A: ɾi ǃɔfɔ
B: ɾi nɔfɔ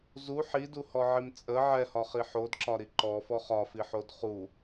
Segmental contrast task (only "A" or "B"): A